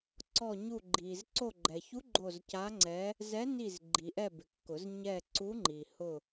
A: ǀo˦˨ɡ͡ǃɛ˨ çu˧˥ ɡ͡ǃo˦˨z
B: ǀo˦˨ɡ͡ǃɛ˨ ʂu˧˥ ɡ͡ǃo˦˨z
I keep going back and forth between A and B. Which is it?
A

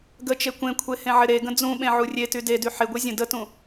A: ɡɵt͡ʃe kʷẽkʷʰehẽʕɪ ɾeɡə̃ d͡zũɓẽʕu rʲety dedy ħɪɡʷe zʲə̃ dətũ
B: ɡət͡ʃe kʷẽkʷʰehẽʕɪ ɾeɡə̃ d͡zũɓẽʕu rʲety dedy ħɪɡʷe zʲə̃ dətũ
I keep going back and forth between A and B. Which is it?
B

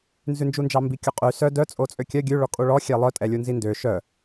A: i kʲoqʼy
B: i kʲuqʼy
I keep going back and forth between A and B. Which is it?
B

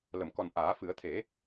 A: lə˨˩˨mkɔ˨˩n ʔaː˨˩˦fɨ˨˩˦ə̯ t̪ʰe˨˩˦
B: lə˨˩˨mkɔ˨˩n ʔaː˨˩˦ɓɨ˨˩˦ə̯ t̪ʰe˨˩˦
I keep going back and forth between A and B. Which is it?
A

